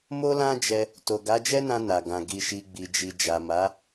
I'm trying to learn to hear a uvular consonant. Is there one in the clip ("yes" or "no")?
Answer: no